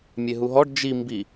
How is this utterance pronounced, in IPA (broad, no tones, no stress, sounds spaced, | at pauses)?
mʲ e ɦ u ɦ ɔ ɖ d͡ʒ i m b i